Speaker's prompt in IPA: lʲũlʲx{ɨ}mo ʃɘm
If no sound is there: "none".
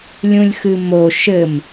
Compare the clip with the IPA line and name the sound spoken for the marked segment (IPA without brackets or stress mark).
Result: ɨ